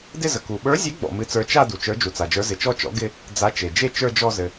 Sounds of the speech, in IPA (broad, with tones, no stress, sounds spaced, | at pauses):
d ɪ˥˧ z ə˩ k u˩ ɓ ə˞˨˥ zʲ e˨˥ ɡ͡b ɔ̰˩ m ɨ˨˥ t͡s ə˞˨˥ t͡ʃ a˥˧ d u˩ t͡ʃ ə˞˨˥ d͡ʒ u˩ t͡s a˩ d͡ʒ ə˞˨˥ z ɪ˩ t͡ʃ ɔ˥˧ t͡ʃ ɔ̰˨˥ ɡ ɪ˥˧ | d͡z a˨˥ t͡ʃ e˩ d͡ʒ e˥˧ t͡ʃ ə˞˥˧ d͡ʒ ɔ˥˧ z ɘ˩